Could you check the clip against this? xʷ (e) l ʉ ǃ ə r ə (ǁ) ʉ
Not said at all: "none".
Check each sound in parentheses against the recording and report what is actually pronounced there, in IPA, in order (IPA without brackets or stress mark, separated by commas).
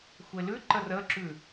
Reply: e, ǁ